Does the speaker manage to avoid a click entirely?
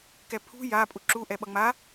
no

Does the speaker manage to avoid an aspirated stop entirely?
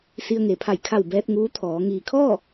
no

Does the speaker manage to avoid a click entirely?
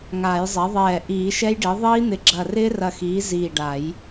no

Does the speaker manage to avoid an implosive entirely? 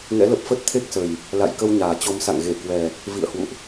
yes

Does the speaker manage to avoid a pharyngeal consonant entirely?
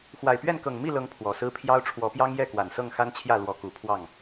yes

